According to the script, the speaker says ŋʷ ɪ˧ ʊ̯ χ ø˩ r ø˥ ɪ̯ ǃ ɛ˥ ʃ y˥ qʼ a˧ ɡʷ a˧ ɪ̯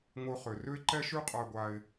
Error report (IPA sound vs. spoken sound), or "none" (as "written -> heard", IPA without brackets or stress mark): none